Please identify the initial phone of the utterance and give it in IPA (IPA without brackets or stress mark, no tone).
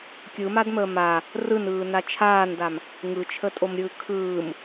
kʲ